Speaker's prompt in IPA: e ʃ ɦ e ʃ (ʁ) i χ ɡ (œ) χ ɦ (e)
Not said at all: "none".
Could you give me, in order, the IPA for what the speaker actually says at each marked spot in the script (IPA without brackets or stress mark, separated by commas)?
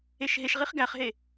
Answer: ʁ, æ, e